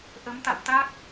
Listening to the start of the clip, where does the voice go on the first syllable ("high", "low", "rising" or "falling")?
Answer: rising